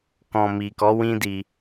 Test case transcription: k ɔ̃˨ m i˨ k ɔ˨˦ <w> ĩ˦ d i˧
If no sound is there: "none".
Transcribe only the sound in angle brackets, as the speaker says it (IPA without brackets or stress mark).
w